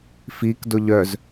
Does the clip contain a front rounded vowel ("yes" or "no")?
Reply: yes